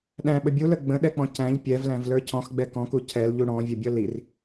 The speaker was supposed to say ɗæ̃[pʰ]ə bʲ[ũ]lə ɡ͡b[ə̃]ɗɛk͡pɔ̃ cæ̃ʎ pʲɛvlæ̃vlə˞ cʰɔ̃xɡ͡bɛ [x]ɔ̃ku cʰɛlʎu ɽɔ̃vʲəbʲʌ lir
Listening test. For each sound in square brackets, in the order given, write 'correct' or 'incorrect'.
incorrect, incorrect, correct, incorrect

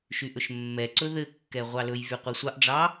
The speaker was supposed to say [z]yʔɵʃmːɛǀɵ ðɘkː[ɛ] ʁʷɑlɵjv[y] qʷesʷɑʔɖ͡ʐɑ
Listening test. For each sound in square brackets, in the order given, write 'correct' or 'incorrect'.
incorrect, correct, correct

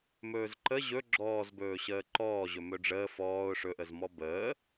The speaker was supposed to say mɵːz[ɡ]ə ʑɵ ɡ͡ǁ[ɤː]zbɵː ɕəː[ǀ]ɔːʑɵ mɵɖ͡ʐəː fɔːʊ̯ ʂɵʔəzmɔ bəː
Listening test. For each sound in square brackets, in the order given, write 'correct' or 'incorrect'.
incorrect, incorrect, incorrect

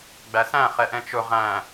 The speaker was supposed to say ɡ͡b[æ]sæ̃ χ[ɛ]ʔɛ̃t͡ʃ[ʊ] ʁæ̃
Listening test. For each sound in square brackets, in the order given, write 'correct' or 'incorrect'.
correct, correct, correct

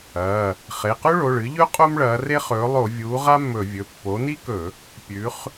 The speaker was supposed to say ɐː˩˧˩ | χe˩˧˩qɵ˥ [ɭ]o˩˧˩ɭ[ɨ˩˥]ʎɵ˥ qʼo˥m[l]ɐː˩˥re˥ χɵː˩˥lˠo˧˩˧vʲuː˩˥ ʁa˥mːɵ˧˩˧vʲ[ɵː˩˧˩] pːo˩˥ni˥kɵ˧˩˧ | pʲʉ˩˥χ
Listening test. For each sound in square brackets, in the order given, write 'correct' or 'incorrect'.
correct, correct, incorrect, incorrect

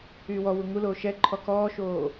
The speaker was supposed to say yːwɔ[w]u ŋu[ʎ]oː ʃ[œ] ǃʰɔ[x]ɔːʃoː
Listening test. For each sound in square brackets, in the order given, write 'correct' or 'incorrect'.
correct, incorrect, incorrect, incorrect

